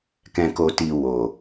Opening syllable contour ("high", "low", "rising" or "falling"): low